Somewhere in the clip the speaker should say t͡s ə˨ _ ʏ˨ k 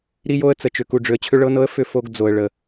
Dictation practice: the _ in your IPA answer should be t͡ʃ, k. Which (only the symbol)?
t͡ʃ